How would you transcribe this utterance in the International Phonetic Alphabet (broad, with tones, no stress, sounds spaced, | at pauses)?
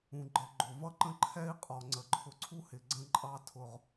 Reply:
ũ˧ ɡ͡ǃ ə˧ ɡ͡ǃ ʊ˨ v ʌ˦ ǃ ə̃˦ ǃʰ ɛ˦ i̯ qʼ ɔ˨ ŋ͡ǀ ə˨ ǃʰ ʊ˧ ǀʰ u˦ h ɪ˨ ɡ͡ǀ ə̃˦ ǃʼ ɑ˧ tʰ ʊ˨ ʁ